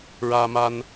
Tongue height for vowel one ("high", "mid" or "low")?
low